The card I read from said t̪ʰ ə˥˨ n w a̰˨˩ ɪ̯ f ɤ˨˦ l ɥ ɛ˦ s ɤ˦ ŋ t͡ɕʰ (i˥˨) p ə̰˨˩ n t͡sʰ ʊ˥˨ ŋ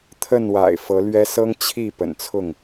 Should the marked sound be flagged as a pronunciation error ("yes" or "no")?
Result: no